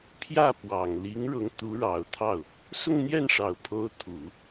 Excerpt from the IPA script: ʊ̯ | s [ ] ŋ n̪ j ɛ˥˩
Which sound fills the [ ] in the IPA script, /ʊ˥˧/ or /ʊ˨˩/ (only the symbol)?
ʊ˥˧